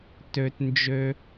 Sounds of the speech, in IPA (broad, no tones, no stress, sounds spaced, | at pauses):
t ø t n d͡ʒ ø